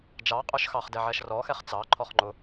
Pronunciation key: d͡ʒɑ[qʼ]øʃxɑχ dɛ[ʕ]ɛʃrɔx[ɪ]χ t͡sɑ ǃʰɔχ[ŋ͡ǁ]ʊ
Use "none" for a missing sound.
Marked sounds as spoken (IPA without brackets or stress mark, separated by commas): qʼ, ʕ, ɛ, ŋ͡ǃ